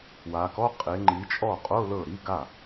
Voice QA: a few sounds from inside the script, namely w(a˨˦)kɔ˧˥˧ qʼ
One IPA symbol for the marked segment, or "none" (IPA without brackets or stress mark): a˨˦